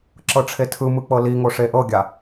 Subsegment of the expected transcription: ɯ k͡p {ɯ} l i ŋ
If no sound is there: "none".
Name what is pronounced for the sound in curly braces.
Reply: ɤ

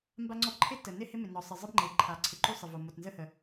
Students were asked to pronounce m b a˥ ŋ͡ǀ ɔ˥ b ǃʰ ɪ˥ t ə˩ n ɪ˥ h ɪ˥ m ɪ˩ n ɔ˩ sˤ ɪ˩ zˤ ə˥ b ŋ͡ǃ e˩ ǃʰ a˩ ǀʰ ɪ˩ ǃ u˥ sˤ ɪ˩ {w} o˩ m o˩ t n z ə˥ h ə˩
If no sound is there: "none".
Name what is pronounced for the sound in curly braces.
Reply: v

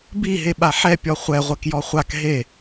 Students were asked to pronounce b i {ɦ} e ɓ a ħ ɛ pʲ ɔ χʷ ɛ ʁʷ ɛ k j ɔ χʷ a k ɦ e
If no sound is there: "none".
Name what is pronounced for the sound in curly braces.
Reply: ɦ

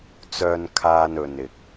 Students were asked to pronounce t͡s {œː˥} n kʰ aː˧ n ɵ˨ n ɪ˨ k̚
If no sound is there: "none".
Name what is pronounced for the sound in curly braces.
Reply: œː˧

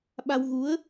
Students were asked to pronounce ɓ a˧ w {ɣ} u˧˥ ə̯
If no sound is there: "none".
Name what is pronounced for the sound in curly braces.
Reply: ɣ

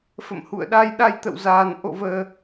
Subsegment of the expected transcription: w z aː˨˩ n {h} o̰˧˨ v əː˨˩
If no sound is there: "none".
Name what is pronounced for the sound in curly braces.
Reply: ʔ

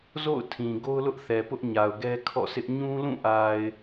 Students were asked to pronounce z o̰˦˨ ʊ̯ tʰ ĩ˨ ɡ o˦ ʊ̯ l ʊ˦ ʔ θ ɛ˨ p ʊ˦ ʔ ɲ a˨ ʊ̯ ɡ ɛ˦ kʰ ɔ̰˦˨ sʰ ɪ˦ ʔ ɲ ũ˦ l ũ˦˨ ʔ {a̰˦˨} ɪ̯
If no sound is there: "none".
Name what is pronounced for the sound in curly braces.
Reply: a˨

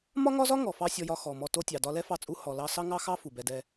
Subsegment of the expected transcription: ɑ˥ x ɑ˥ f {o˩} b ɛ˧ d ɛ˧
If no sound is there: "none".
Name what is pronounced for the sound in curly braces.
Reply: u˩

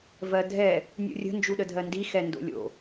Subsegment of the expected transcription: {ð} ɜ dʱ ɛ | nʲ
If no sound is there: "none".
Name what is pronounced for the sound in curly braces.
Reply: v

